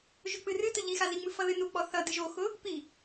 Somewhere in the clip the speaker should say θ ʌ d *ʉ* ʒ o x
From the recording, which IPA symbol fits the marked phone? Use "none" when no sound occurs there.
ɨ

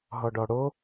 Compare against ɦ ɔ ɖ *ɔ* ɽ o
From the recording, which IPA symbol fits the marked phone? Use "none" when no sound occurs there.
ɔ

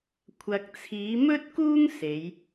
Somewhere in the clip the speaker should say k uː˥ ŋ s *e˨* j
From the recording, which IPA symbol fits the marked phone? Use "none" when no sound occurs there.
e˨˧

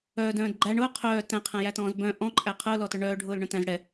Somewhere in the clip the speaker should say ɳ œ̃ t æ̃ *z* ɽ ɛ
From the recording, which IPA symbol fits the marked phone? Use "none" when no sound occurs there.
z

